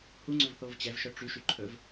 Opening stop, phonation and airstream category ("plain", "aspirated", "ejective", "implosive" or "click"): click